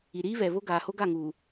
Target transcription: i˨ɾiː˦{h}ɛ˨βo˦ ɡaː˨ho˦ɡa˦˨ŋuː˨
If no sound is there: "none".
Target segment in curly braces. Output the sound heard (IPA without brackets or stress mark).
β